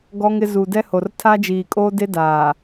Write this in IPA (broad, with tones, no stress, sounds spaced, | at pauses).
ɡ ɔ˦ ŋ ɪ˦ z uː˨ d ɛ˦ h o˨ r tʰ aː˦ d͡ʒ iː˨ kʼ oː˦ d e˦ d aː˨